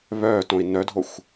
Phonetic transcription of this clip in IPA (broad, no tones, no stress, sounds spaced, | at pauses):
β œː t õ i̯ n œ dʱ o xʷ